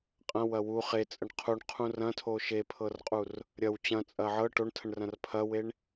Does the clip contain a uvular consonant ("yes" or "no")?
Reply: yes